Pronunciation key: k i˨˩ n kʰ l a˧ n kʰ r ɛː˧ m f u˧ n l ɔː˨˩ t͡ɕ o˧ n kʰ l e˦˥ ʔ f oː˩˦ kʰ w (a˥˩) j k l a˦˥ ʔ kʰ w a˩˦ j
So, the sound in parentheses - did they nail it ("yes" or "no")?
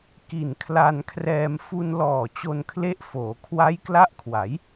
no